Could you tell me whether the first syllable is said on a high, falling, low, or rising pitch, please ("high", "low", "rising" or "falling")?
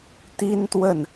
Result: high